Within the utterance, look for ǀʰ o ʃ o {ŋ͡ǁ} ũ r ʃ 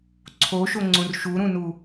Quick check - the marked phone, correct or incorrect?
incorrect